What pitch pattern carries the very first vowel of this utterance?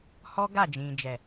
high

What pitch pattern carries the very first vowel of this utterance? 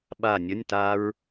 falling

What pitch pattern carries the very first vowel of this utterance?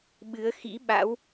rising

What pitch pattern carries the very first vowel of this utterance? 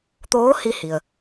rising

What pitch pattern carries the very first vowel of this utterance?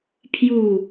falling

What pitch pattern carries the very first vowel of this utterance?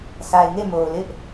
low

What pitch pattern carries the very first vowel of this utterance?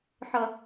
high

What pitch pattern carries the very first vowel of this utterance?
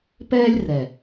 high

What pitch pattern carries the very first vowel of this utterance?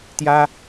high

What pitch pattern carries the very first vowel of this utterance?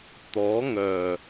rising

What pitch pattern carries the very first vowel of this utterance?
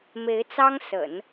rising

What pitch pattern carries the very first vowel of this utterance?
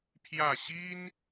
falling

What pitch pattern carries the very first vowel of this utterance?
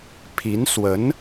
rising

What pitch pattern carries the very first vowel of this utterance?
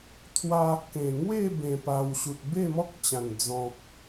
high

